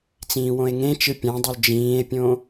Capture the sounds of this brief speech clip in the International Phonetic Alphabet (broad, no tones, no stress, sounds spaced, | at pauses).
t͡s ĩː w õ e̯ ŋ ẽ t͡ʃ ɯ pʲ ã dˤ o l d͡ʒ ĩː e̯ pʲ õ